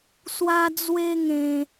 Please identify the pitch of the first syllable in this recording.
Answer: high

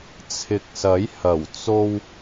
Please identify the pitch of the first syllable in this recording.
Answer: low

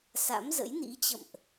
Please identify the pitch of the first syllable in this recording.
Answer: rising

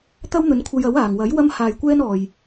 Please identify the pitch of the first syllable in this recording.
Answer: high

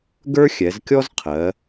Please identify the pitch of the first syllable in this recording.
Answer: high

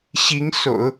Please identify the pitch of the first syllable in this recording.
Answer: rising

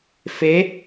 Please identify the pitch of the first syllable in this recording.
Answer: rising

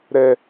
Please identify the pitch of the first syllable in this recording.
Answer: low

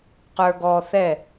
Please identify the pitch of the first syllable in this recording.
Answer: high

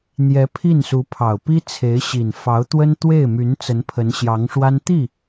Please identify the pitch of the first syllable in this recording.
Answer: rising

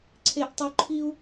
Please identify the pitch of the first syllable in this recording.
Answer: low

